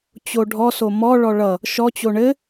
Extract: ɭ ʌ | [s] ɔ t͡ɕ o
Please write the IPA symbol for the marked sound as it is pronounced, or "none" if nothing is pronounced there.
ʃ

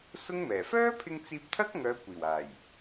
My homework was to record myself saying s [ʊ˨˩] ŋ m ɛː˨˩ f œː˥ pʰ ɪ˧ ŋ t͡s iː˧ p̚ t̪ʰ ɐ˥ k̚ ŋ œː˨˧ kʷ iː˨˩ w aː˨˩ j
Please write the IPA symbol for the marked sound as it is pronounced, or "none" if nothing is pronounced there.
ʊ˥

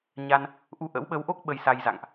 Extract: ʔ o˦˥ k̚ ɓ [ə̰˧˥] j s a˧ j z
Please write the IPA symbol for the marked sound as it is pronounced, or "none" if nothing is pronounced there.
ə˧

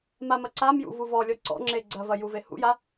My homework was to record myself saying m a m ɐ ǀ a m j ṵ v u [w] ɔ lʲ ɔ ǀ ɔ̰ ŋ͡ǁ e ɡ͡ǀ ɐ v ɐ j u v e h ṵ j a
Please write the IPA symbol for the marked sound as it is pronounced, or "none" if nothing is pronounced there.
v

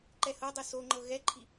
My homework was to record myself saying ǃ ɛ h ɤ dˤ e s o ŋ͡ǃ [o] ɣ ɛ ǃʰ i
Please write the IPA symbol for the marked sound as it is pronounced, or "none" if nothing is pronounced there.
ɤ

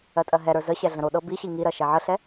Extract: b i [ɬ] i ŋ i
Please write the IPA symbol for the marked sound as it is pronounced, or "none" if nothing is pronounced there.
ɕ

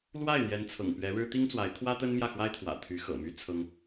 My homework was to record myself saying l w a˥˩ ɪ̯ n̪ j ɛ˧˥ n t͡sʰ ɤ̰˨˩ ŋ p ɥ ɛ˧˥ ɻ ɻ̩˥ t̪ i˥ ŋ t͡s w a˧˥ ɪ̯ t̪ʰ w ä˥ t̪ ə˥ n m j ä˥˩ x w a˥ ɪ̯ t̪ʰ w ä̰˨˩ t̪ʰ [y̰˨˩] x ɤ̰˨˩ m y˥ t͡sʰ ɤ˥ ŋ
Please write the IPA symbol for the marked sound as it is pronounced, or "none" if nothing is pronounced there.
y˧˥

